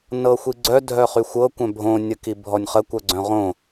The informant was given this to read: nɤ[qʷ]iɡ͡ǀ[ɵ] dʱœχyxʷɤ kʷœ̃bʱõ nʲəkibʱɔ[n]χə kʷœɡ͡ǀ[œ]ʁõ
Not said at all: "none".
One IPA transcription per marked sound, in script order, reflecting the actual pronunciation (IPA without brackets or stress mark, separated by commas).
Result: xʷ, œ, nʲ, œ̃